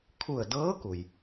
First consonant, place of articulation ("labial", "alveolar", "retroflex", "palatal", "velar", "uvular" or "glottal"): velar